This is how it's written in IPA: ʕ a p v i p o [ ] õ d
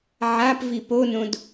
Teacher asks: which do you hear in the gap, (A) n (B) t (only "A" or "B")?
A